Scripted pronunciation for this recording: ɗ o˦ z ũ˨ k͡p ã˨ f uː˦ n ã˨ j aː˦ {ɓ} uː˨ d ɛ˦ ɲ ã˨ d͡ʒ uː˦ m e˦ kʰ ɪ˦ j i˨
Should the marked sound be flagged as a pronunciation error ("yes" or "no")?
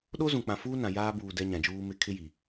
yes